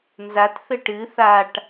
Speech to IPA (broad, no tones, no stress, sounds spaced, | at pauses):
n z a t θ ɘ ʈ ɨ θ a ʈ